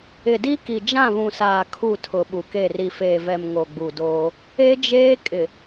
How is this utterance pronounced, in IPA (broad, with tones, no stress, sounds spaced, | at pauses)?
ɪ˨ d i˦ k i˨ d͡ʒ ã˦˨ β ũ˨ s aː˨ kʰ u˦˨ tʰ ʊ˨ ɓ u˨ k e˦˨ r i˨ f eː˨ v ɛ˨ m ŋ o˨ ɡ͡b u˨ d oː˦ | e˦ d͡ʒ eː˦ kʼ ɪ˨